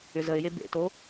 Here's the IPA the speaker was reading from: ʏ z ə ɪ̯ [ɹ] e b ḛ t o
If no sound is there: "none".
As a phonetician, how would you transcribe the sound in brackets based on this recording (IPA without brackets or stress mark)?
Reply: j